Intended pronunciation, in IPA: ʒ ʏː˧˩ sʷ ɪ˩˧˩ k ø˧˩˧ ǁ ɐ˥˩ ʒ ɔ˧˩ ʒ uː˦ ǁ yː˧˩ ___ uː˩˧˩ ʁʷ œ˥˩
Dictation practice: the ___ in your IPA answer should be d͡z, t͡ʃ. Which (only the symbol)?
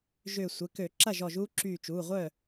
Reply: t͡ʃ